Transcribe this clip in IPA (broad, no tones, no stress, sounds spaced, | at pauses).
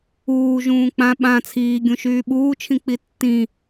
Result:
uː ʒ ũː k͡p ã ɓ ã t͡sʰ iː ɡʲ ũ ʃ yː ɓ uː t͡ʃʰ ĩ k͡p i tː ĩ